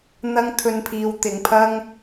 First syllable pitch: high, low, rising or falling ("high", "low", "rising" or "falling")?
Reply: high